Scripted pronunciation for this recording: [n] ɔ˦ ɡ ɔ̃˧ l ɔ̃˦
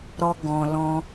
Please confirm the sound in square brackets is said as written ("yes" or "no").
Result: no